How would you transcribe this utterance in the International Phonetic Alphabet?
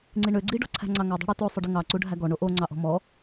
ŋ͡ǀ i ɳ ø ɡ͡ǀ i ɖ ɔ̤ ǀʰ æ̤ ŋ͡ǀ ɑ ŋ ø dˤ o̤ ɽ u t o sˤ ɵ ɖ i ŋ ɑ ǀ u ɖʱ æ ɡ ɔ ɳ o ʔ o ŋ͡ǀ ɑ ʔ ɔ̤ m ɔ

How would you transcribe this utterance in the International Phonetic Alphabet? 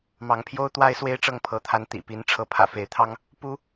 m ɑ˨˦ ŋ pʰ j o˦ ʊ̯ t̪ w a˦ ɪ̯ s w e˦ ɪ̯ ʈ͡ʂ ɤ˥˨ ŋ pʰ ɤ˨˦ t̪ʰ a˨˦ n t̪ ḭ˨˩ p i˨˦ n ʈ͡ʂʰ ɤ˨˦ pʰ ä̰˨˩ f e˨˦ ɪ̯ t̪ʰ ɑ˦ ŋ | p u˦

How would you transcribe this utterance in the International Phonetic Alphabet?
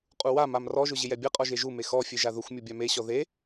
qʼ u w a m a m r ɔ ʒ ʊ ʑ ɪ j ɛ bʲ ɛ qʼ ɔ ʒ e ʒ u m e x ɔ fʲ e ʒ a ð ʊ xʷ mʲ u bʲ a m e ɕ ɔ ð e

